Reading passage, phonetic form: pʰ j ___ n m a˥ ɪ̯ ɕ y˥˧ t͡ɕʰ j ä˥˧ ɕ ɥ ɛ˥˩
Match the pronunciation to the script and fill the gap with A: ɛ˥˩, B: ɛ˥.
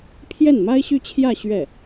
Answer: A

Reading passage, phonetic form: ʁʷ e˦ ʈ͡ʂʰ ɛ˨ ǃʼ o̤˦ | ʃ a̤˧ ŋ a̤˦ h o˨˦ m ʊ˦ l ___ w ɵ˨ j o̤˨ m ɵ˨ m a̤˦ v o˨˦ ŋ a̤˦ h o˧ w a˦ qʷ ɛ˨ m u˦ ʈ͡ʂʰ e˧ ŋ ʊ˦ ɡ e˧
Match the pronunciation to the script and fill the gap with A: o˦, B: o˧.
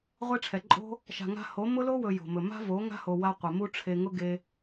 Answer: A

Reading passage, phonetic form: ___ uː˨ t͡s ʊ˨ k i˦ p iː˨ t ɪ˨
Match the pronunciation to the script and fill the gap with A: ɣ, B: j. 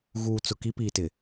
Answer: A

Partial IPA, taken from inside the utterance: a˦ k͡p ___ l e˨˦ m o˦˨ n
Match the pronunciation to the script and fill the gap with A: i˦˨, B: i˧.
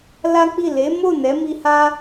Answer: A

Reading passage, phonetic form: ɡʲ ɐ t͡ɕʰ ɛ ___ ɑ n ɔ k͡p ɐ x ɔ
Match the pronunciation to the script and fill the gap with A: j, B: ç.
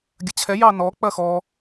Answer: A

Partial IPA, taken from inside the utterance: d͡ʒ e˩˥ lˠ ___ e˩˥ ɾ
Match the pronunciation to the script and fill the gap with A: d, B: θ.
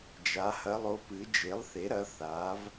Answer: B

